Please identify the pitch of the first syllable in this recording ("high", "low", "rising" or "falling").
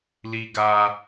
high